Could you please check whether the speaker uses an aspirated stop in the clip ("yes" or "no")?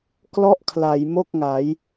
yes